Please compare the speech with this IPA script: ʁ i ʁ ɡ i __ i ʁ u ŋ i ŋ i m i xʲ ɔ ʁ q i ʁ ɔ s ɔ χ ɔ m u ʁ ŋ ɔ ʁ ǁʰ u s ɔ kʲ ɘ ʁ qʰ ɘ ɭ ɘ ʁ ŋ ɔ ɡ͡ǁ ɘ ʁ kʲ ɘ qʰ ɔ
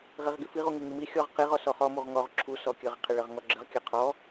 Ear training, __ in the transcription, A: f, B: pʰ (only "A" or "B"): A